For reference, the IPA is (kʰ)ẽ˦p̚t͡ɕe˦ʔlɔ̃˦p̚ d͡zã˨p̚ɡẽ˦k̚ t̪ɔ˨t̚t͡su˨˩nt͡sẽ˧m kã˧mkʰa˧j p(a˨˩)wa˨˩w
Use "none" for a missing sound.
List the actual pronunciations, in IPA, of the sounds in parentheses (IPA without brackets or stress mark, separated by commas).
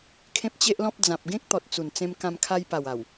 kʰ, a˨˩